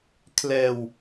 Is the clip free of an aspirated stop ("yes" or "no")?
no